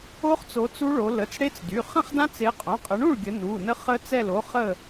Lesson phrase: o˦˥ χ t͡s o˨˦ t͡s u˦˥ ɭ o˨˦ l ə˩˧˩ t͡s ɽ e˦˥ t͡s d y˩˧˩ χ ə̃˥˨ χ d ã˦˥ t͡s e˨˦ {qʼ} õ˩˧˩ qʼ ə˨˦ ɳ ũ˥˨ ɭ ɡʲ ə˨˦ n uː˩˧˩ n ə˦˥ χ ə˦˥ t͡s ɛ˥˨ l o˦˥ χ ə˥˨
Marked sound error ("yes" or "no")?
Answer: no